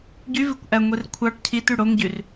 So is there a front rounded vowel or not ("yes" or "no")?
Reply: yes